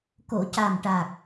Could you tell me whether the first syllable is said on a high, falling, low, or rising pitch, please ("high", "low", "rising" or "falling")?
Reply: low